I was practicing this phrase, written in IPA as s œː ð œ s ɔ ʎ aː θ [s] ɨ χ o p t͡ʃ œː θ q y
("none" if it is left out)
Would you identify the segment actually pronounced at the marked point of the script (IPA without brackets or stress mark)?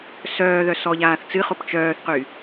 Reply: t͡s